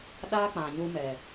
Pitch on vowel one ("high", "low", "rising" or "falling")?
high